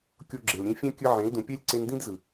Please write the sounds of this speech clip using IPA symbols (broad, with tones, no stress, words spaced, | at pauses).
kʲo˧ ɡ͡ǁe˨l ɾʲẽ˧fʲɛ̃˦ kʲɯ˧ʕẽ˨˦ldũ˨pʲɛ˦lʲ ǀe˧ndĩ˦dzɯ˨